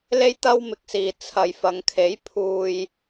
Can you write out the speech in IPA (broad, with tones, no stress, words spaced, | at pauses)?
le˥jt̪ɐ˥wmɪ˧k̚siː˨ t͡sʰɐ˨˧jfɐ˨˧ŋ kʰe˨˥jpʰuː˧j